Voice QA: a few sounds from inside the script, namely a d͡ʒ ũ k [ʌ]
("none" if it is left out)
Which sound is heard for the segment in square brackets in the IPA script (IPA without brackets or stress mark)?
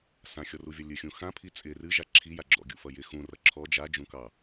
ɑ